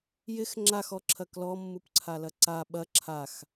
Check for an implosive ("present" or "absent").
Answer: present